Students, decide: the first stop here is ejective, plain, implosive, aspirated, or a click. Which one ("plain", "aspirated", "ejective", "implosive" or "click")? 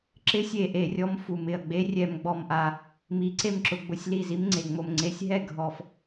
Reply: click